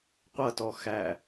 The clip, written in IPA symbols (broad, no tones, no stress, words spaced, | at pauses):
qʷʌtɔ xæ